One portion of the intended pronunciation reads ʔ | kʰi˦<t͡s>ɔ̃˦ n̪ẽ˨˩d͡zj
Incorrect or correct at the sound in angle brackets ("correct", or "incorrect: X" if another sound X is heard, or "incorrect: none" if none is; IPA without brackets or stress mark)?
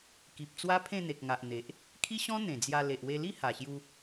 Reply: incorrect: ɕ